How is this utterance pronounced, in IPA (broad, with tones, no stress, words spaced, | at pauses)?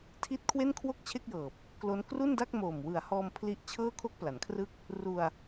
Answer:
tʰi˦˥t̚ kʰwe˥˩nkʰwo˥˩k̚t͡ɕʰe˥˩k̚jɤː˨˩p̚ | klo˦˥n kru˥˩nda˥˩k̚moː˨˩m wɯ˩˦a̯hɔː˧m pʰli˥˩ʔ t͡ɕʰɤː˥˩kʰo˥˩k̚pla˩˦nkʰrɯ˥˩k̚ | ru˧a̯